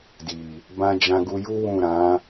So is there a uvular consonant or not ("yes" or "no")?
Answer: no